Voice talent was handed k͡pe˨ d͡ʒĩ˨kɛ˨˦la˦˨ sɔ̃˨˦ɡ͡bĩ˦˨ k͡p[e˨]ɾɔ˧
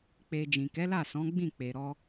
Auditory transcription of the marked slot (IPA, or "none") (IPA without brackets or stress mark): e˨